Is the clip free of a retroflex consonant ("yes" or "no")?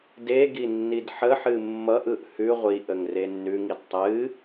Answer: yes